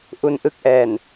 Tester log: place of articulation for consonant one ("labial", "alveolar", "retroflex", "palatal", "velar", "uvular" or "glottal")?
glottal